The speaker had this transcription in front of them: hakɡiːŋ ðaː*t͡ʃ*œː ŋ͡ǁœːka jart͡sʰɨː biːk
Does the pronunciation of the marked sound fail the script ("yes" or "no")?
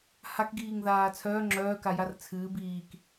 yes